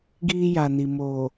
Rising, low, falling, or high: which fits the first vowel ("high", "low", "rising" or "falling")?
high